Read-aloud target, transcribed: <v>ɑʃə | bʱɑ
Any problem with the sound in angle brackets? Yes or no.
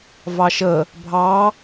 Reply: no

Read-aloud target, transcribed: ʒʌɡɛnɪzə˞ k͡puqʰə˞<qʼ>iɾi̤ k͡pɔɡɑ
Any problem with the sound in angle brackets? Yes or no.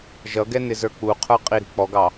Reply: no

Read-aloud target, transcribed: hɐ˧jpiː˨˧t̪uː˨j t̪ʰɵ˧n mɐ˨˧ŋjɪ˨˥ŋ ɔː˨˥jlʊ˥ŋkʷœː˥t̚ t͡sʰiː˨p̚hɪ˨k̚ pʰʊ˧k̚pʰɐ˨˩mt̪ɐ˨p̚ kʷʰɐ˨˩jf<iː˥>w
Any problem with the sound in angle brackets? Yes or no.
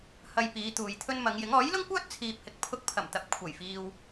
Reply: yes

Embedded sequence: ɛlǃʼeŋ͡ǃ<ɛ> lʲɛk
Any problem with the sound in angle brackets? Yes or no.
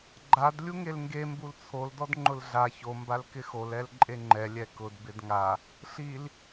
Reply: no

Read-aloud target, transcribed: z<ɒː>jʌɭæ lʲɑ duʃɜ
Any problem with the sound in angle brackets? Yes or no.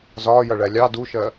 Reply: no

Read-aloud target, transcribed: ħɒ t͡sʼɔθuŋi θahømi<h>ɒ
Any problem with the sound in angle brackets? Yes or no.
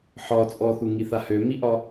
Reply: yes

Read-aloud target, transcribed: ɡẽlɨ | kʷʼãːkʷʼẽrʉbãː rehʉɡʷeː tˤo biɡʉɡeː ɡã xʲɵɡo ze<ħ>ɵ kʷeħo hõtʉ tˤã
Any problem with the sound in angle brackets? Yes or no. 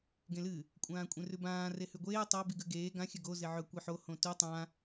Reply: yes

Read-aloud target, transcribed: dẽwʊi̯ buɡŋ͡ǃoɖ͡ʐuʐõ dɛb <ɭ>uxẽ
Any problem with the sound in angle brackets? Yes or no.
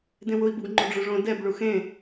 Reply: no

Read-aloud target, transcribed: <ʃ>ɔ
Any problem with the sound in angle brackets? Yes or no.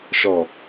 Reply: no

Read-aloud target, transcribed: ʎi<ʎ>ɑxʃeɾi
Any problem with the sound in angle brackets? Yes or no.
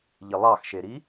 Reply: yes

